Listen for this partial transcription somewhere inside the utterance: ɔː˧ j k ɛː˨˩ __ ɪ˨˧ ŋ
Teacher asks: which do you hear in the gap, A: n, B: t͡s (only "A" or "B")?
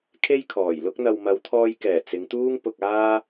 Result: B